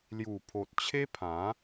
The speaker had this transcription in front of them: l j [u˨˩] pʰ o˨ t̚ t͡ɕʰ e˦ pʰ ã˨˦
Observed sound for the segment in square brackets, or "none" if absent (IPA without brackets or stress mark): u˨˩